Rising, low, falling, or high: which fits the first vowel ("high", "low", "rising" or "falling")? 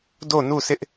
falling